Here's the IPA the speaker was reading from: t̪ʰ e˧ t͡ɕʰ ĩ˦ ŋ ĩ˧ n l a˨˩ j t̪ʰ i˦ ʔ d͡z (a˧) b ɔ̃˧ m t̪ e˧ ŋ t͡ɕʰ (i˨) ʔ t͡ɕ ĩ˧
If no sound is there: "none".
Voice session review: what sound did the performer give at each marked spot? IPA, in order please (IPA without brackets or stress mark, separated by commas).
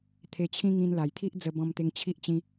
ə˧, i˦